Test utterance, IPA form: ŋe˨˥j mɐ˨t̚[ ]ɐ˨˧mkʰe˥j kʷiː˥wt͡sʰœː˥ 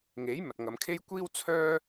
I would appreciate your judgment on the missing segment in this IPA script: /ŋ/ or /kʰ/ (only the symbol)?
ŋ